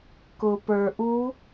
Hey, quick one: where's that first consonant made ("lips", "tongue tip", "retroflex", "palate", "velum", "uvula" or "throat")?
velum